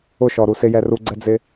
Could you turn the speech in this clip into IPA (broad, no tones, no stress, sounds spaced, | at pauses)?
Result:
ʊ ʃ ɔ ɾ u s ɪ j ɛ r u ɡ͡ǀ ɛ d͡z ɪ